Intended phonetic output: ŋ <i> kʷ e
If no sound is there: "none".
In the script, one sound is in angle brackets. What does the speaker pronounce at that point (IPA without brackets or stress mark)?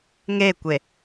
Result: e